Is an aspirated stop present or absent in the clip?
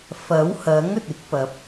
absent